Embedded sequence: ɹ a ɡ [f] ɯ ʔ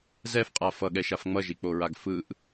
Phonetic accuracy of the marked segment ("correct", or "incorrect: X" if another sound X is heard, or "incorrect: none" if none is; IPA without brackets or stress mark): correct